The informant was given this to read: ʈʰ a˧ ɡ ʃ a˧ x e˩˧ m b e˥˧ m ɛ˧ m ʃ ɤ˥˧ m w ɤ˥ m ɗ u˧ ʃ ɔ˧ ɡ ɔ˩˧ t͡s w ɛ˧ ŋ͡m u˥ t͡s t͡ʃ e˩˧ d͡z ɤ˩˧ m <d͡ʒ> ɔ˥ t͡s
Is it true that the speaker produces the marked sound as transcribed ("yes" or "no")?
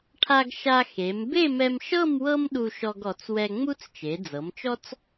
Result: no